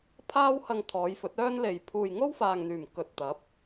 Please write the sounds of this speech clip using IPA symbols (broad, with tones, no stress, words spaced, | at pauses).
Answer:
pʰaː˧whɐ˨ŋ t̪ʰɔː˨˧jfɵ˨˥t̚œː˥n le˨j pʰuː˨jŋo˥wfaː˨ŋn̪yː˨˩m kɵ˨t̚t̪ɐ˨˥p̚